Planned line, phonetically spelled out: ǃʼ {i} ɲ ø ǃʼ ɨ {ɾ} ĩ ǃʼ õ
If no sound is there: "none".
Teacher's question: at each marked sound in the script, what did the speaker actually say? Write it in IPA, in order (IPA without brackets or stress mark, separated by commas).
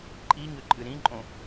i, ɾ